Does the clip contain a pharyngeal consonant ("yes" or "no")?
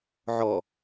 yes